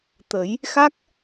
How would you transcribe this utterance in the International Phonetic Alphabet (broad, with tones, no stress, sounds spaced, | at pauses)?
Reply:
t̪ ə˨˩˦ j | x a˦˥ k̚